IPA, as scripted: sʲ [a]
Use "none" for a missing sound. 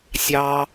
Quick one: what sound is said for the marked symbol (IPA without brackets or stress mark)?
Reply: ɑ